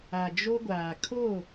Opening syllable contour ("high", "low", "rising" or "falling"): low